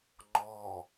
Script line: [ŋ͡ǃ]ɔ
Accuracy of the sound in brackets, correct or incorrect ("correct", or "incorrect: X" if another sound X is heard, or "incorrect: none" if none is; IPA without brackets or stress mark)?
correct